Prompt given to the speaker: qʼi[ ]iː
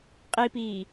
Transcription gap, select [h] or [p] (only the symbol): p